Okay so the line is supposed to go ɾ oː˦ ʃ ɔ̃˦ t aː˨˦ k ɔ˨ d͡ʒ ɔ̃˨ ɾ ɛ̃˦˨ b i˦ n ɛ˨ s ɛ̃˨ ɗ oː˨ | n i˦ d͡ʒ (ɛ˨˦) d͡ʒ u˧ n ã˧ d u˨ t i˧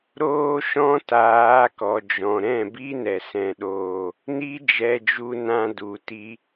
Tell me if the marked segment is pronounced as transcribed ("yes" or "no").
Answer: no